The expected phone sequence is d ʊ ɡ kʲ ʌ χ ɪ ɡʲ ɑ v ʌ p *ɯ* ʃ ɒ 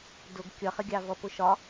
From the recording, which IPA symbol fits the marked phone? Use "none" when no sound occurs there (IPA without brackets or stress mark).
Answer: ʊ